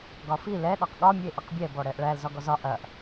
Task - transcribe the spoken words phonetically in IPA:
ɡ ɒ f i l ɛ ɗ ɒ q ɠ ɒ mʲ ə e̯ ʔ ɐ q bʲ ɛ b ɔ ɽ ɛ ʔ ɭ æ l z ɒ ɡ ɔ z ɒ ʔ ɐ ʔ

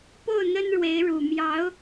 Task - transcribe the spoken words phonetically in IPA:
p o˥˩ ʊ̯ n̪ ə˥ n ɻ w e˧˥ ɪ̯ ɻ u˨˩ m j ɑ˧˥ ʊ̯

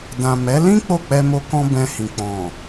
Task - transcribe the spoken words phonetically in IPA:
d ã˨ m ɛ˨˦ l ĩ˦ k͡p o˦˨ k͡p ɛ˧ m o˧ k ɔ̃˧ b ɛ̃˧ h ĩ˨ k͡p ɔ̃˨

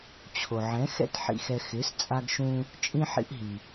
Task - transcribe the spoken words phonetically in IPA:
t͡ɕʰ o˩ ʕ ɛ̃˩˥ x ɛ̰˥ t ħ ḭ˧ x ɛ˧ x ɪ˩˥ s t͡sʼ a˧ ɡ ʃ ũ˧ | t͡ʃʼ ĩ˥ ħ ḭ˥ ʔ ɦ i˩

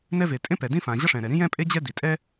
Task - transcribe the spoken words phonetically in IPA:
n ɛ˥ v e˩ tʼ ẽ˥ p ɛ˩ d ĩ˥ f ã˩ ʑ ʌ˥ ʂ ɛ̃˩ ɾ ɛ˩ ɾ ĩ˥ j ɛ̃˥ pʼ e˥ d͡ʑ ɛ˥ d i˩ tʼ ɛ˥

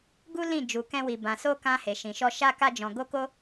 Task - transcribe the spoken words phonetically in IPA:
ɡ u˦ l ĩ˦˨ d͡ʒ u˧ k ɛ̃˦ w i˧ b ã˧ s o˦ k ã˦ h e˧ ʃ ĩ˧ ʃ ɔ˦ ʃ a˦ k a˦ d͡ʒ ɔ̃˧ ɡ o˦ k o˦

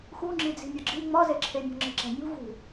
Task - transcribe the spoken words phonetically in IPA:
x u ŋ͡ǁ i d͡z i̤ mʲ ɒ ɡ͡ǁ i ŋ͡m ɒ z e ǁʰ e mʲ o̤ ŋ͡ǁ i̤ ǁ æ̤ mʲ ṳ v ṳ

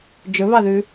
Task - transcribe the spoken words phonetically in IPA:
d͡ʒ ɵ β ɑ ð ʉ

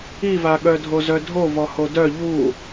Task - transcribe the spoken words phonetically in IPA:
i v a ɠ œ dʱ o z œ dʱ o v ɔ h o d œ ʎ u

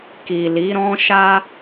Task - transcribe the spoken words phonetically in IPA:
k i˨ l i˨˦ ɾ ɔ̃˦ ʃ a˦

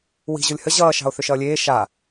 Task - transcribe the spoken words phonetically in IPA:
w i̤ ʑ o lʲ h ə ʑ ʌː ʃ ɑ̤ o̯ θ ʏ ʃ ʌː lʲ eː ʃ a

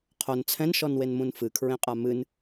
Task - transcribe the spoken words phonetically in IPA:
qʰ o n t͡sʰ ɛ̃ n ʃ ɔ n w e n m ũ n f ɨ kʰ ɹ ẽ qʼ a m ɨ n

